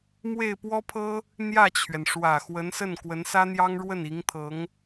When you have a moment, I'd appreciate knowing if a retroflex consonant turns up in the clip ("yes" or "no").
yes